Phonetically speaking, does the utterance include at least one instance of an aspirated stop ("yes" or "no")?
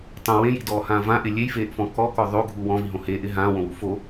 no